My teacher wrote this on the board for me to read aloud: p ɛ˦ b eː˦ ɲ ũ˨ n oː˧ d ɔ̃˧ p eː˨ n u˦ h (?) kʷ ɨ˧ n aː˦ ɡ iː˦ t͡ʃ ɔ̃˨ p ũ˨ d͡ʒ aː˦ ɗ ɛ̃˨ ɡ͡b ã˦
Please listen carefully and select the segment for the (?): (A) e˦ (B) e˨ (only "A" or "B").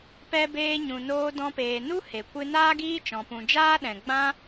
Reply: B